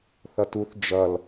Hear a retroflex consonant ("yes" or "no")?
no